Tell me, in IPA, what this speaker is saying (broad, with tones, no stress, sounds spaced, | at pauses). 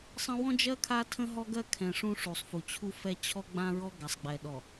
sˤ ə̃˦ w ɔ̃˦ d͡ʒ ɜ˦ kʰ a˦ tʰ ə̃˦ ɦ ɔ˦ ɡ ɜ˦ kʰ ɛ̃˨ ʂ ũ˦ ʂ u˨ sˤ f u˨ t͡ɕʰ u˦ f ɛ˦ t͡ɕʰ ɔ˦ ɡ͡b ã˦ ɹ ɔ˦ ɡ a˨ sˤ ɡ͡b ɛ˨ ɗ ɔ˨